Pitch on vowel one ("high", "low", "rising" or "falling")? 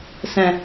low